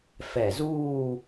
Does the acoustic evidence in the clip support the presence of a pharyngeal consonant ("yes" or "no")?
no